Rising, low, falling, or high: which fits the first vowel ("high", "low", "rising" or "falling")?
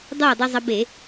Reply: falling